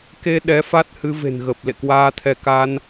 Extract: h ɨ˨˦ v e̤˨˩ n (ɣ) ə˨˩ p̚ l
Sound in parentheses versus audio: correct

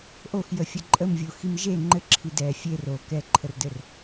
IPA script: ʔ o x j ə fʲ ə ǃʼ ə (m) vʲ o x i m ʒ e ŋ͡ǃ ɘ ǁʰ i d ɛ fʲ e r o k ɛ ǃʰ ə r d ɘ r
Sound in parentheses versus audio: correct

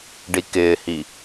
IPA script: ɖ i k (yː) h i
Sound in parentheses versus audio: incorrect: ɪː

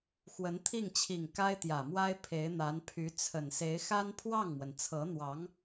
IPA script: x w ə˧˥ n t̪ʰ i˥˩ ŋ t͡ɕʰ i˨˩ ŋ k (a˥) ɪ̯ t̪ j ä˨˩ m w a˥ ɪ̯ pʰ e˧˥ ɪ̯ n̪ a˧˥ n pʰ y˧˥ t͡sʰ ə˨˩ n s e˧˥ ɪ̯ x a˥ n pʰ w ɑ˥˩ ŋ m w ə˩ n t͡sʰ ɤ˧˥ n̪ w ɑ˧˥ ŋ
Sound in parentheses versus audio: correct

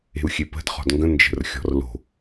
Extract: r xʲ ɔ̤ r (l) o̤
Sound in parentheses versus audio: correct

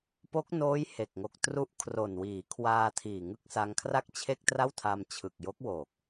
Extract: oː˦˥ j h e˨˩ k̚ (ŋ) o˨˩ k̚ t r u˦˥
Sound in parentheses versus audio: correct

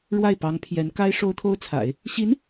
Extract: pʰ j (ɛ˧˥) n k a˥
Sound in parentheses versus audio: correct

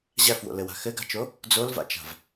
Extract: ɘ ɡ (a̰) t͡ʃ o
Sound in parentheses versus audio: incorrect: a̤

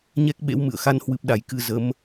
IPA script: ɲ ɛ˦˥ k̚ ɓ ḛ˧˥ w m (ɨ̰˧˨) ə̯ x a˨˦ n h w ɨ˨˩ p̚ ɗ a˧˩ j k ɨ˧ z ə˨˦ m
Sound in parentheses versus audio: correct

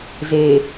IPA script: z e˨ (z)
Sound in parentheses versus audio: incorrect: none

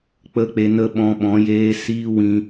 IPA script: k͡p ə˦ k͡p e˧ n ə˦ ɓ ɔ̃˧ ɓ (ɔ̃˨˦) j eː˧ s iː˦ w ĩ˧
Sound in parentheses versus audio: correct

